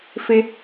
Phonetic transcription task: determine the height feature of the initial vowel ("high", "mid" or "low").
high